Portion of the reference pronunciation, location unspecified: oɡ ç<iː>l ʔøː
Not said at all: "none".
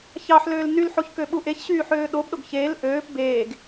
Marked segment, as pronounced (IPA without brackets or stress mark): eː